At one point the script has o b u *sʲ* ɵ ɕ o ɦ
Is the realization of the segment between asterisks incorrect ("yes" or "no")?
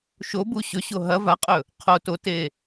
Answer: yes